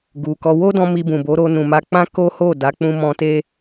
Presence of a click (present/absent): absent